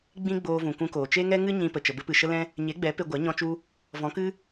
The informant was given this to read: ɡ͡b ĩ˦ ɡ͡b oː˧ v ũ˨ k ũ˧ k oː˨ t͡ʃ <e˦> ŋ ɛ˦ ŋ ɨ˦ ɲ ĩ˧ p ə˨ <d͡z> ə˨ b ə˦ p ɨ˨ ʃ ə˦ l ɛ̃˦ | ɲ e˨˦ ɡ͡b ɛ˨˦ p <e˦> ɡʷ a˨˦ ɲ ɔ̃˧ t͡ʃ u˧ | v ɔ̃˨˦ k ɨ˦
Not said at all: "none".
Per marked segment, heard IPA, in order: e˦, t͡ʃ, e˧

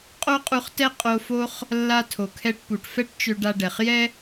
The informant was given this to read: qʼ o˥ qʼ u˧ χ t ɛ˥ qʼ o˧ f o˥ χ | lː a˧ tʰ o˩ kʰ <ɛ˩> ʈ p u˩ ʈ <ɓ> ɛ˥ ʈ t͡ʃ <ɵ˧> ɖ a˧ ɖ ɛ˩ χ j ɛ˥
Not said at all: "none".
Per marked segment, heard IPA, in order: ɛ˧, f, ø˧

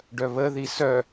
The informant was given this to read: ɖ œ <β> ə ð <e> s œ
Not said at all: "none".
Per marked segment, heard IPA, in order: β, i

